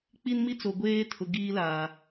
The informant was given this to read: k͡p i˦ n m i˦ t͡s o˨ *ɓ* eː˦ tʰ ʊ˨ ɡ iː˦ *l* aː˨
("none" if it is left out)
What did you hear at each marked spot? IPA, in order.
ɡʷ, l

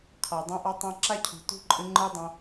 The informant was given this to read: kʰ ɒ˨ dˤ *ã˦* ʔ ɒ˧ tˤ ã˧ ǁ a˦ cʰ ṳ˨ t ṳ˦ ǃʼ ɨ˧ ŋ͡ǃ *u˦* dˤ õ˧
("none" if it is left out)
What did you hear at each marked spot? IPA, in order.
ã˧, ɯ˦

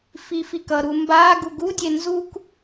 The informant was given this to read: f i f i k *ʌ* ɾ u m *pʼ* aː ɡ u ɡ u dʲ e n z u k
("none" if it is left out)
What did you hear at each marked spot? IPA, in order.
ʌ, b

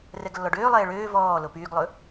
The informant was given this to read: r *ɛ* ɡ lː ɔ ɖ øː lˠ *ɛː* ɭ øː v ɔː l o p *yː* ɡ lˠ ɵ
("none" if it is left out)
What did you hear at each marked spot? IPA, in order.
ɛ, ɛː, yː

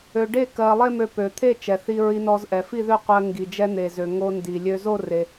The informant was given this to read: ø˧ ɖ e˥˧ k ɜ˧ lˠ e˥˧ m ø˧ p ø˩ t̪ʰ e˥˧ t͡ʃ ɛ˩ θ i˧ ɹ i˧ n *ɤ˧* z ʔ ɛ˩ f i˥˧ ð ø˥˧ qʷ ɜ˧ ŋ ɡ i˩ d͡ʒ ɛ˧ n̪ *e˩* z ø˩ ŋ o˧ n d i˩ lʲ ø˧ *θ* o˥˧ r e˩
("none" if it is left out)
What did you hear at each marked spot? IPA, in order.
ɔ˧, e˩, z

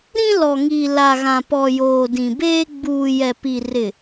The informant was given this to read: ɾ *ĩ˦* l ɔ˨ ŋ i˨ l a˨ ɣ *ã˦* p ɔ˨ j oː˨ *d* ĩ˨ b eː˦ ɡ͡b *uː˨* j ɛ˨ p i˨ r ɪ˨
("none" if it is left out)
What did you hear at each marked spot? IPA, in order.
ĩ˦, ã˨, d, uː˨

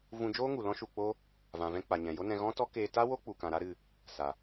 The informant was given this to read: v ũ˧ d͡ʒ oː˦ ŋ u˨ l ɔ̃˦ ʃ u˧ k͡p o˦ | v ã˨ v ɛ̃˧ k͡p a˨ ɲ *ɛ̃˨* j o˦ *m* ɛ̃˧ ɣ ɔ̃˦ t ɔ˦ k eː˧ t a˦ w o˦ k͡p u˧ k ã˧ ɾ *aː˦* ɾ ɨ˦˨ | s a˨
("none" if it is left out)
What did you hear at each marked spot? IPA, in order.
ɛ̃˨, n, a˦

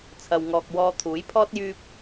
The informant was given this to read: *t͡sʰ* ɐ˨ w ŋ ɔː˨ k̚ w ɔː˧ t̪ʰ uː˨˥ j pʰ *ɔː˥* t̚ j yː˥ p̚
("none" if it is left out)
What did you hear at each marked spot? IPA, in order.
t͡sʰ, ɔː˥

